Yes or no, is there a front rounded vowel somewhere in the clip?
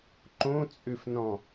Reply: yes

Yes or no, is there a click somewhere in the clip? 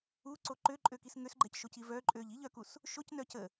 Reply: yes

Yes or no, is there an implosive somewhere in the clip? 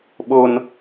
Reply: yes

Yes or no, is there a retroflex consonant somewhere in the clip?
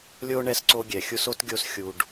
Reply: yes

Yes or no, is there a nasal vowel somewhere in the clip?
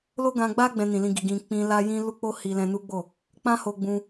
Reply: yes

